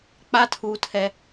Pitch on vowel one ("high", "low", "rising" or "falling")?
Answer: high